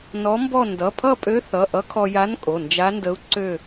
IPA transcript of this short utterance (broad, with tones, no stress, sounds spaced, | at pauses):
n ɔ˧˥ m b ɔ˥˧ n d ʌ˩˧˩ pʰ ʌ˥˧ pʼ ø˧˥ θ ʌ˩˧˩ ʔ ʌ˧˥ kʰ ɔ˧ j a˧˥ n kʼ o˩˧˩ n d͡ʒ a˧˥ n d ə˧˥ u̯ ǀ ø˥˧